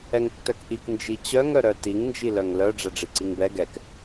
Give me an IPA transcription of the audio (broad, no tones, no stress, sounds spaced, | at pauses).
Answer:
ɛ ŋ tː œ k ʔ i k n d͡ʒ i t͡ɕ œ ŋ œ ɾ œ t i ŋ n d͡ʒ i l œ ŋ l œ ɖ͡ʐ ɛ ɖ͡ʐ i ǀ i ŋ b ɛ ɡ ɛ k